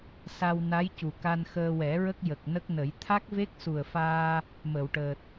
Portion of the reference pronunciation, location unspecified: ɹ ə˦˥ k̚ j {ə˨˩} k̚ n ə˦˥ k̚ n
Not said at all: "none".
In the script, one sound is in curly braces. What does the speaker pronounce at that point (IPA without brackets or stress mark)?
ə˨˩